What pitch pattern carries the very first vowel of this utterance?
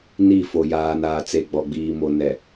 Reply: falling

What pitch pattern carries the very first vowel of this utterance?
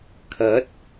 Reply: rising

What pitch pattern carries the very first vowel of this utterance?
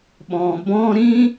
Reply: low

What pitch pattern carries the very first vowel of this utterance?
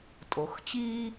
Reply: low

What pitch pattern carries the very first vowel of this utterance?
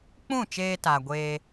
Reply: falling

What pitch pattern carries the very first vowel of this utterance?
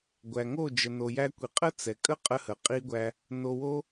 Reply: low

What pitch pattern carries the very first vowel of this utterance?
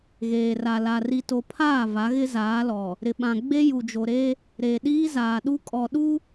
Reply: low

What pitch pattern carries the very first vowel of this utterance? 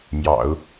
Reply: low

